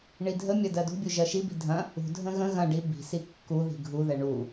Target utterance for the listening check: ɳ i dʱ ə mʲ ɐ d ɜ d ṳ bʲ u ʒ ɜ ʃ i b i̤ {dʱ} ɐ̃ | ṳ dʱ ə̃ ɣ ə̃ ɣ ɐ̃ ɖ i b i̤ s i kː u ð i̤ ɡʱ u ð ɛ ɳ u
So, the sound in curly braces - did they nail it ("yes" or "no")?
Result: yes